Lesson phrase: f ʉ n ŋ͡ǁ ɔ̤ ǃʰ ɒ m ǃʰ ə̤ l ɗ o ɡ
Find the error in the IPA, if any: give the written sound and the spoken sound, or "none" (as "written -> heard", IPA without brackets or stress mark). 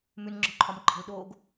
f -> m